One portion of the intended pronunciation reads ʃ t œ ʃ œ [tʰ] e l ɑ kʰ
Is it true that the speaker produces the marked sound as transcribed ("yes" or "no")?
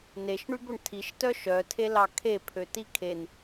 yes